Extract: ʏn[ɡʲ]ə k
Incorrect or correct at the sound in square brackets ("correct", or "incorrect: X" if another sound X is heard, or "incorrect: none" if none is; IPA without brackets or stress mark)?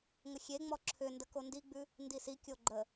incorrect: d